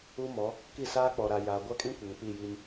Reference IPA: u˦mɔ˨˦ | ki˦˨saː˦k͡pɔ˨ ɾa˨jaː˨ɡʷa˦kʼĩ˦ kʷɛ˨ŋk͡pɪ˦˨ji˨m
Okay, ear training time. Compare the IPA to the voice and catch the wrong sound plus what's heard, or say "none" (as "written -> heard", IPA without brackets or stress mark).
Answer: ɪ˦˨ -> i˦˨